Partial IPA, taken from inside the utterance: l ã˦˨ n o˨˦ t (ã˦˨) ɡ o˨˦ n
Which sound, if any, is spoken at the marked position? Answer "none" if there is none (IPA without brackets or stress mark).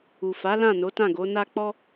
ã˦˨